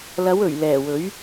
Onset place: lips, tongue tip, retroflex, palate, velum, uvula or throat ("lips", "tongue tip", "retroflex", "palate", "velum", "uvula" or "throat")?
tongue tip